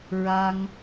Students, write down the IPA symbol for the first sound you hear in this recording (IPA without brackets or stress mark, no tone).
ɹ